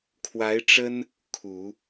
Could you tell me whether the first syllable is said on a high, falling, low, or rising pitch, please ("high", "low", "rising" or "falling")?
rising